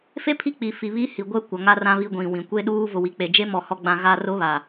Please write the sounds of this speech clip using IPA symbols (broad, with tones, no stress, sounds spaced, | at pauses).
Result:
f e˦ pʰ i˦ k͡p i˨ f i˨ β i˦ h i˨ ɡʷ ɛ˦ kʷ a˨ ŋ a˦ r ã˦ β i˦ ɡʷ ĩ˨ w ĩ˨ kʷ e˦ ɗ uː˦ v ʊ˨ w i˨ k͡p e˨ d͡ʒ e˦ m ɔ˦˨ h ɔ˦ ɡ͡b ã˦ ɣ a˦ r ʊ˦ β a˨